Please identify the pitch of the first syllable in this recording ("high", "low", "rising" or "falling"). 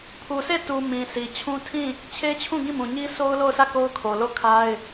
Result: low